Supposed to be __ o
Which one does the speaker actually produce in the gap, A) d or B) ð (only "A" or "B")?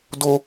A